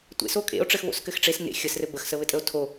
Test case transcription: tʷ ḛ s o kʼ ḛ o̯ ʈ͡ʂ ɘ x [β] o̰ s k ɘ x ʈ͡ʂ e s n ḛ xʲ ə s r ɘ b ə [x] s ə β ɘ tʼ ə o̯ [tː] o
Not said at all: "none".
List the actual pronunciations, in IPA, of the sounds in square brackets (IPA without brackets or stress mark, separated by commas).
β, x, tʰ